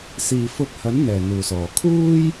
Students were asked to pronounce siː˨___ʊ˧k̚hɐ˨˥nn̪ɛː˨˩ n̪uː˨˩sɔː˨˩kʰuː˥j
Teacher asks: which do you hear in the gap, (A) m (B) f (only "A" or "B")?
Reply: B